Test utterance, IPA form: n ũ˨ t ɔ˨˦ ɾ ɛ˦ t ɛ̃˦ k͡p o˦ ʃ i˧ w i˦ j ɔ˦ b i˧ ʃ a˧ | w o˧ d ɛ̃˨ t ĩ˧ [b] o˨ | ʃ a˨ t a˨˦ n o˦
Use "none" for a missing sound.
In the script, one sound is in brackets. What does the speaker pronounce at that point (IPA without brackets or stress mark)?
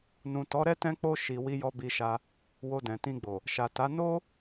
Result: ɡ͡b